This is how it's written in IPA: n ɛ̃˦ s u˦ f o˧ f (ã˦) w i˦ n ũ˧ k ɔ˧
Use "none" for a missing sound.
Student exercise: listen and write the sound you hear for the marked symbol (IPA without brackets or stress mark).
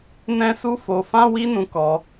ã˦